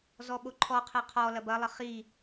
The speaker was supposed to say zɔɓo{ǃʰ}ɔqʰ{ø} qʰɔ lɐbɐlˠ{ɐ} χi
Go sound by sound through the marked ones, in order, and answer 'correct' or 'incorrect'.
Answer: correct, incorrect: ɛ, incorrect: ə

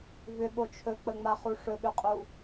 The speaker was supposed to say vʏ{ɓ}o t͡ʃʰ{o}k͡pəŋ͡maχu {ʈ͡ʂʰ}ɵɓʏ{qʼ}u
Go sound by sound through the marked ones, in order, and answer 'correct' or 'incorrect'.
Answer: correct, incorrect: ɵ, incorrect: ʂ, correct

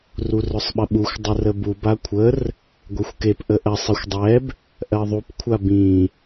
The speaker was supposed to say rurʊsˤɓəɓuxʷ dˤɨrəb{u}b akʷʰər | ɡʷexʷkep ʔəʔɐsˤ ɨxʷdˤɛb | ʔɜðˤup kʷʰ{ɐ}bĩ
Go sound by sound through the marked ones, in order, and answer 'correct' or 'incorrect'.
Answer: correct, incorrect: a

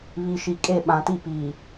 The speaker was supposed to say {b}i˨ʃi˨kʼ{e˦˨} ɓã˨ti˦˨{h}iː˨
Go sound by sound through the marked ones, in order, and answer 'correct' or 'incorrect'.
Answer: incorrect: β, correct, incorrect: p

